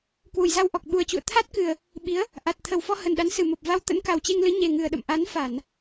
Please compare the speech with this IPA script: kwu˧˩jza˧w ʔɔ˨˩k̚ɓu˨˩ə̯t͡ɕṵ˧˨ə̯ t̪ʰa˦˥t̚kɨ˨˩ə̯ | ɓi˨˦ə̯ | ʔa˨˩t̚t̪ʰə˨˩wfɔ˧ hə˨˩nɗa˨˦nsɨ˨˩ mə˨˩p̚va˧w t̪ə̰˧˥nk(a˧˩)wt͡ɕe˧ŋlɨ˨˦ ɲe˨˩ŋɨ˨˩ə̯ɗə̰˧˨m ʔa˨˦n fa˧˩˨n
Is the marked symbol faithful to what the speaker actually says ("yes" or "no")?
no